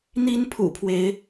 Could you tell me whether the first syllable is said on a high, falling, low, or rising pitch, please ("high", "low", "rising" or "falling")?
high